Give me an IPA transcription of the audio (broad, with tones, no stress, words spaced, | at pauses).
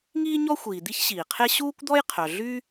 ŋiː˥ɲɔ˥xʷiː˩ d̪i˥çɕiː˩qʰe˥ ɕuː˥kʷd̪ɔ˥jqʰœ˩ ɮy˥